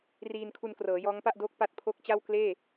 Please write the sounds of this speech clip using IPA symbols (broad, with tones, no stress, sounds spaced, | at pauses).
r iː˧ n kʰ u˧ n k r ɤː˩˦ j ɔː˦˥ ŋ p a˥˩ ʔ d oː˦˥ k̚ p a˦˥ t̚ pʰ o˦˥ k̚ t͡ɕ a˥˩ w k l eː˥˩